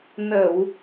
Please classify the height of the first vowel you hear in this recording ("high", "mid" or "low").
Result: mid